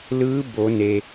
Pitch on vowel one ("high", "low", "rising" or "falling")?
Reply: rising